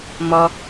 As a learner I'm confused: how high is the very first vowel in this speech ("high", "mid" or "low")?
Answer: mid